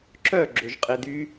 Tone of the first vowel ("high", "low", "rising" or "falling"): falling